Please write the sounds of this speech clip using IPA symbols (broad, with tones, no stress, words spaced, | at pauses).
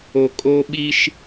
o˨kʼo˦ɓi˦ʃ